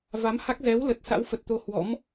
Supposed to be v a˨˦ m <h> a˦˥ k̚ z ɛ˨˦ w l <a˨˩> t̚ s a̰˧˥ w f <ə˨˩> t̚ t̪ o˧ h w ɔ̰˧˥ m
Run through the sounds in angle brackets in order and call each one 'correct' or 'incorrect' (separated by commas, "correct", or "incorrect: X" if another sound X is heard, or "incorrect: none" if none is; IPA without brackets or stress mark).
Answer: correct, incorrect: ə˨˩, correct